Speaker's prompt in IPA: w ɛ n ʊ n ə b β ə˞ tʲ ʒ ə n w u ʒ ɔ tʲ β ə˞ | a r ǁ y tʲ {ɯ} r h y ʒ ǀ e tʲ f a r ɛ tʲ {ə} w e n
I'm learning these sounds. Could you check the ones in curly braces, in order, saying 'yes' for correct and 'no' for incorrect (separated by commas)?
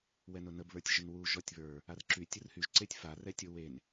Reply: yes, no